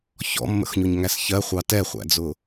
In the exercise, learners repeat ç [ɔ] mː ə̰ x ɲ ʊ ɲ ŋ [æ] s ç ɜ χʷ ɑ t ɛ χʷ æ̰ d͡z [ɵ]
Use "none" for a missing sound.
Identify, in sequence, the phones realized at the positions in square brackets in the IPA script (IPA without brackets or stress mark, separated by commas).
ɔ̰, æ, ʊ